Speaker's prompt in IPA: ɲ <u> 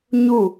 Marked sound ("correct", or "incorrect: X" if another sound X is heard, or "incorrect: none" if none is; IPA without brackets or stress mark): correct